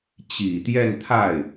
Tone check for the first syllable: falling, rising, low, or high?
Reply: low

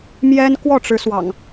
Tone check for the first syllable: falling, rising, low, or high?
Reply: high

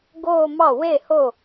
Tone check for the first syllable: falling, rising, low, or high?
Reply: falling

